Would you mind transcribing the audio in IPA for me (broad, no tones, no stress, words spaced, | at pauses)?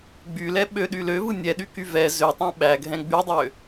ɡ͡bylɛ ɓøɗy løvɯ nʲɛɗyky vɛ zøtˤɛ̃ ɓæɡʱɛ̃ ɡ͡bydˤø